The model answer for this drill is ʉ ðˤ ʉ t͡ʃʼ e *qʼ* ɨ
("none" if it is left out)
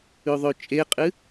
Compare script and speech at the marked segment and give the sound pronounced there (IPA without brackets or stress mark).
qʼ